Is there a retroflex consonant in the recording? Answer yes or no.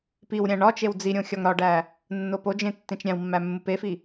yes